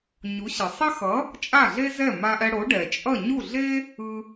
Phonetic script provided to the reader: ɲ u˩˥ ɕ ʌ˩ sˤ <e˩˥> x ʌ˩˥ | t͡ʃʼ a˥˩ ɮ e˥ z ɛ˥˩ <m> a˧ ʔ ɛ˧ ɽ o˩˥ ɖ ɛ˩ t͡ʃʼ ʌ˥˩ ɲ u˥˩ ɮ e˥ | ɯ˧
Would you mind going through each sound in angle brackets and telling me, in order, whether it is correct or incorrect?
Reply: incorrect: e˥, correct

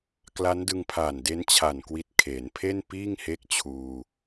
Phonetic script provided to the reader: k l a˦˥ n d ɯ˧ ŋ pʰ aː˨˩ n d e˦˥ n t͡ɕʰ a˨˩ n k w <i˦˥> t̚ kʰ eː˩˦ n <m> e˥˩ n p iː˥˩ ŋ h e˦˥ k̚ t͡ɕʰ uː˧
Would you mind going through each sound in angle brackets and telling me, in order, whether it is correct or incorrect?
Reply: correct, incorrect: pʰ

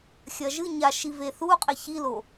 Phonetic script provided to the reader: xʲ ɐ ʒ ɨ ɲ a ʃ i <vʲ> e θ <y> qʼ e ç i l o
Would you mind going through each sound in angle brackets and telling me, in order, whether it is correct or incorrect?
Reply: incorrect: v, incorrect: u

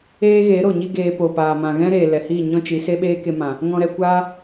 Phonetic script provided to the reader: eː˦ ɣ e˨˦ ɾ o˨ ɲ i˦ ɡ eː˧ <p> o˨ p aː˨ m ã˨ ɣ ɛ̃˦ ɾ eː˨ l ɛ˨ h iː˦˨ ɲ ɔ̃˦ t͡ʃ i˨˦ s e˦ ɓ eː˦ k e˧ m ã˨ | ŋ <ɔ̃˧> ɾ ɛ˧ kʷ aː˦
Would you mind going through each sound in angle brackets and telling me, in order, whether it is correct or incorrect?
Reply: correct, correct

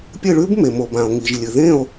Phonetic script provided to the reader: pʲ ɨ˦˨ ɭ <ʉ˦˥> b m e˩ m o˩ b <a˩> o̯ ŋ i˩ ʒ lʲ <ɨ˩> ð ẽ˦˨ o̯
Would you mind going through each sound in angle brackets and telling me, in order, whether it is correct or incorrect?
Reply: correct, incorrect: ã˩, correct

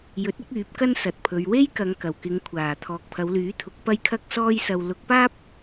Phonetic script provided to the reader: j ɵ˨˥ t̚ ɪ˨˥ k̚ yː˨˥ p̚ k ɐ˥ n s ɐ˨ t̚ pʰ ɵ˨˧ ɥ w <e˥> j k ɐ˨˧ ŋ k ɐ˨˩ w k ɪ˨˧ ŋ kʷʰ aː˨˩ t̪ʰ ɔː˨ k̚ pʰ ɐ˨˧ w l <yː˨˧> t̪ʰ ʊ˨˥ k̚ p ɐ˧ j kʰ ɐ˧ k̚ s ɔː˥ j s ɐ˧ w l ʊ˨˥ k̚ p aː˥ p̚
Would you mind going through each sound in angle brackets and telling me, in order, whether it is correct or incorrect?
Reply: correct, incorrect: yː˨˥

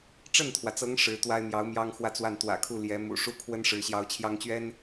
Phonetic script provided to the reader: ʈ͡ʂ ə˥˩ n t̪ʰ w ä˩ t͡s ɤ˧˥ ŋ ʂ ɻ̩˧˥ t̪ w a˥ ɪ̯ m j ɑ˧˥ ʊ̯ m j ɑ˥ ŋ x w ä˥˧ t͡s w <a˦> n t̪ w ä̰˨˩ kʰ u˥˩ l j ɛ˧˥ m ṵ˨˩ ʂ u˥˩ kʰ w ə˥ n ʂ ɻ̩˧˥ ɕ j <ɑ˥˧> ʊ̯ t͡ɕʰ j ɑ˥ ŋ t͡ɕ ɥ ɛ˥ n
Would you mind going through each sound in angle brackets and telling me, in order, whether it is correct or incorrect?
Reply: incorrect: a˥˩, incorrect: ɑ˧˥

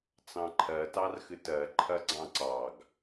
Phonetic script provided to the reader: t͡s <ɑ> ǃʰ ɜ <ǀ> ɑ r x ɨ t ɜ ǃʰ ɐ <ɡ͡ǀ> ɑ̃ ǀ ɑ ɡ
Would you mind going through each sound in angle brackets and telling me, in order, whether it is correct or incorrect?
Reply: incorrect: ɑ̃, incorrect: t, correct

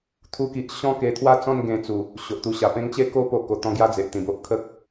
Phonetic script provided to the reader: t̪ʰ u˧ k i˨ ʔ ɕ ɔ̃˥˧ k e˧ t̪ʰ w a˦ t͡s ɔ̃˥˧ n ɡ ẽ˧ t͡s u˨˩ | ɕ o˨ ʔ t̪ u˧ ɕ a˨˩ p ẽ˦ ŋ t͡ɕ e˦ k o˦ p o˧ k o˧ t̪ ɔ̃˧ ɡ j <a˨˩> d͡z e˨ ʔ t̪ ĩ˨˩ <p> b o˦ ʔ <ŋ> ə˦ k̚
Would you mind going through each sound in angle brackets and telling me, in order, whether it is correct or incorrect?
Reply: incorrect: a˥˧, incorrect: none, incorrect: kʰ

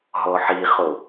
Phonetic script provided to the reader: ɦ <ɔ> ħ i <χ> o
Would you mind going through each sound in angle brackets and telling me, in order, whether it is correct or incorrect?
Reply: correct, correct

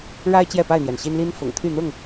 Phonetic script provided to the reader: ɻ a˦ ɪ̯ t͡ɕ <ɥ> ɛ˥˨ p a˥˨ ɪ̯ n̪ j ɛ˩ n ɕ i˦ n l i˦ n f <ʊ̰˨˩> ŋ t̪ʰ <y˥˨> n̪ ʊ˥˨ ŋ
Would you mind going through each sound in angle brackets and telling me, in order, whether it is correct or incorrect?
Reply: incorrect: j, correct, correct

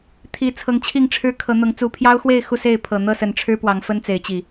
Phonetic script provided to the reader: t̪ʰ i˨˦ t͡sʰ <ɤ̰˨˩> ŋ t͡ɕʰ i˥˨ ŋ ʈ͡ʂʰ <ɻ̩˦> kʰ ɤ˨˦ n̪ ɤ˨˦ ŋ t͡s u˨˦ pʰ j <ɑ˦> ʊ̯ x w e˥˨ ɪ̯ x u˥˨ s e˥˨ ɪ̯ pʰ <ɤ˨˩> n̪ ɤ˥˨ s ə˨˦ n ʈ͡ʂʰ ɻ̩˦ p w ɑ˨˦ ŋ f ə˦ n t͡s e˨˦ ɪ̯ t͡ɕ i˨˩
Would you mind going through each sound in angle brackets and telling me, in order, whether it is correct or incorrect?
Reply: incorrect: ɤ˨˦, correct, correct, correct

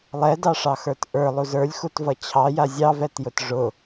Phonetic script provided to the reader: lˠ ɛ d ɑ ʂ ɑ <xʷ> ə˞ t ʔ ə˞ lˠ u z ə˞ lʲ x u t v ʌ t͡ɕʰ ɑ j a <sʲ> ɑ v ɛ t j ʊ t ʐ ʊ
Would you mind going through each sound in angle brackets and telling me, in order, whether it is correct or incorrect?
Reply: incorrect: x, incorrect: zʲ

